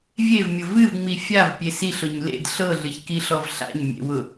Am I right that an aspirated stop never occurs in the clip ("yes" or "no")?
yes